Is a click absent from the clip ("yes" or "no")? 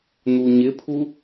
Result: yes